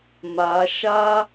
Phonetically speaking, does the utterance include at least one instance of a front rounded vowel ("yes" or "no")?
no